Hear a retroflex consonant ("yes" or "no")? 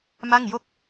no